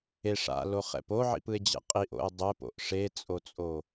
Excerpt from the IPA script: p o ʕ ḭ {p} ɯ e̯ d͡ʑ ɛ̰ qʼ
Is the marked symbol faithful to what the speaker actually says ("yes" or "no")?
yes